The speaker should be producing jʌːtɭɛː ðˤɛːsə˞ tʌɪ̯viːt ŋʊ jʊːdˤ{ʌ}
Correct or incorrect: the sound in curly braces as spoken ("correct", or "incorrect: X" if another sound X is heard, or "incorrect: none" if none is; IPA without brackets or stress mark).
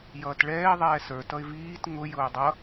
correct